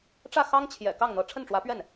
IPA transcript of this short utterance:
ʈ͡ʂä˥˩xɑ˥ŋt͡ɕʰjɛ̰˨˩ kɑ˥˩ŋn̪ɤ˧˥ ʈ͡ʂʰə˥˩nʈ͡ʂwä˧˥pɥɛ˥˩n

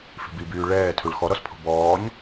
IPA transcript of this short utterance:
fi̤bibyː ɭɛː tʰuɭxɔɾɔspʰo̤ bɔːɲ

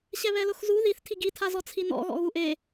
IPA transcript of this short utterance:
ɕɛβɛlʊxzu ðiθ tʰiɡi tʰazɔt͡sʰinɔ̰ ɣɔ̰ɣuʔe

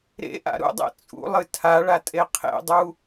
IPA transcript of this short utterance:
ɾḛʔa̰ ɾṵdˤḛ t͡sʼṵlˠɨ tʰaɭatʼe qʰḛdˤu

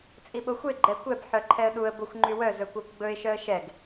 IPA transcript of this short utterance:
t͡sʼiɓoxʷe ɡ͡ǃɛkʷɛb ħœǃʰɛə̯ɗuə̯ boxʷŋ͡ǃywœ zɵkʷɑkʷɡ͡bɵɪ̯ ʃœə̯ʃɛɡ

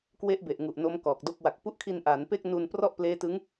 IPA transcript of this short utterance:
kwe˦˥ʔbe˨˩ʔŋu˨˩ʔ no˦˥mkɔː˨˩k̚do˥˩k̚ wa˨˩k̚pu˦˥ʔkʰi˧n ʔaː˩˦npe˥˩k̚ nu˧nprɔ˥˩ʔ pleː˦˥tɯ˦˥ŋ

